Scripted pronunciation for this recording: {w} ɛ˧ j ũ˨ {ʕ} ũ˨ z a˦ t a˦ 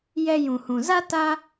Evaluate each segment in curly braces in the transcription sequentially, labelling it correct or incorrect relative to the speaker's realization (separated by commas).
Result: incorrect, incorrect